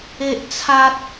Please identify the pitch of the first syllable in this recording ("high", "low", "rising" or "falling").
high